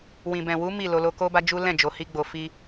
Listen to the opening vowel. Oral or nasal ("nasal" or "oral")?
nasal